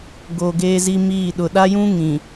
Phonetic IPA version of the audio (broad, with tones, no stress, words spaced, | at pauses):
ɡoː˨ɡeː˦zi˦ miː˦˨ ɗʊ˨ɗa˦jũ˦ ŋĩ˨